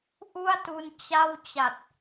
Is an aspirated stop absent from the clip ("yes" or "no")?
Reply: yes